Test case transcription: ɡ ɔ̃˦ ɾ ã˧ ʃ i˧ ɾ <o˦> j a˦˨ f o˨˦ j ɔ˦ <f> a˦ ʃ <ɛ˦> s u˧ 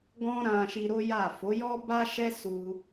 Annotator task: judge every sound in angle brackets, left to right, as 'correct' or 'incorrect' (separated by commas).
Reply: correct, incorrect, correct